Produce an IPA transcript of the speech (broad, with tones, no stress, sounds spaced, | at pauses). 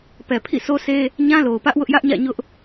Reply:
p ɛ˨ pʰ ḭ˦˨ s o˦ s e˦ | ɲ ã˦ l o˨ ʊ̯ p ä˦ ʔ w ʊ˦ ʔ j ä˦ ʔ ɲ ä̰˦˨ ɲ ʊ˦ ʔ